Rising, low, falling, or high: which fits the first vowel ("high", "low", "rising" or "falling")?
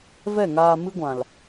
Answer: falling